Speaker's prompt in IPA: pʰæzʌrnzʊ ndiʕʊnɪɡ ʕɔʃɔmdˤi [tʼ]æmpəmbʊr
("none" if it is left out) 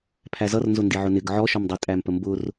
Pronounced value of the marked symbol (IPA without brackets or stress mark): tʼ